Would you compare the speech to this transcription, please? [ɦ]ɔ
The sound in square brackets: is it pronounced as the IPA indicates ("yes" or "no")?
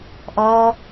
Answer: no